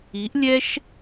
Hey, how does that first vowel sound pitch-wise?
rising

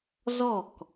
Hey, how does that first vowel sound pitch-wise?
falling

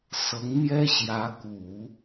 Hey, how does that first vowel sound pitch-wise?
rising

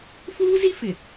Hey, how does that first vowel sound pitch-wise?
high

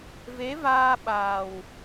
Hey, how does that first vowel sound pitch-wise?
rising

